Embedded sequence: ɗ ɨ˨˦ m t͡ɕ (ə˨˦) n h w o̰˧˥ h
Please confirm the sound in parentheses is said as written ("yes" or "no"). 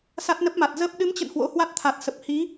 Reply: no